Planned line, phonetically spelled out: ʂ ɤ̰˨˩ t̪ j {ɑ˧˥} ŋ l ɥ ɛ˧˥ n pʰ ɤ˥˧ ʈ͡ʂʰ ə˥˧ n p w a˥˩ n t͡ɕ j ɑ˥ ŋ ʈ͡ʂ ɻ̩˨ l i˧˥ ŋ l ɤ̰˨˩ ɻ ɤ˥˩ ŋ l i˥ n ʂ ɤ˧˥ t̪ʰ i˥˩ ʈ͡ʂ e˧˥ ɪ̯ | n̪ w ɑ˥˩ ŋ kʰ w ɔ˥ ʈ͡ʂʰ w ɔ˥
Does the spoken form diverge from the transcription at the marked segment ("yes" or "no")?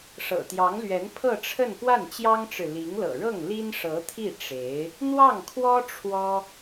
no